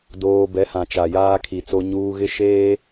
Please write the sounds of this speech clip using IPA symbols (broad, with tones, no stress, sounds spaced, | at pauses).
d oː˦ b ɛ˨˦ h ã˨ t͡ʃ a˨ j aː˦ kʰ i˨ t͡s o˦ ɲ uː˦ ɣ ɪ˦ ʃ eː˦